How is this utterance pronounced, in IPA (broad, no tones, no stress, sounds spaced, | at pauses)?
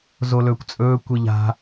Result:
z o l ɵː kʷ t͡sʼ ɵː kʷ i ʎ a̤